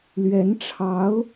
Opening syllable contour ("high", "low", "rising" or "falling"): rising